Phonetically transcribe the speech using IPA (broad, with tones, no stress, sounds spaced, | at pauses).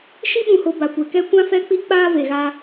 ʃ i˦ ɓ ũ˨ h o˨ b a˨ kʷ e˨ k ɛ˦ kʷ ã˦ f ɛ˦ k͡p i˦ k͡p aː˦ v e˨ ɣ a˦